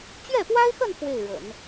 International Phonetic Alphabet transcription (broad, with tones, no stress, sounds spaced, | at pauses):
t͡ɕ ɥ ɛ˥˩ p w a˥ ɪ̯ x ə˥˧ n f w e˥˩ ɪ̯ ɻ ə̰˨˩˦ n